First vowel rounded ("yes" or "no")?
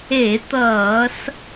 no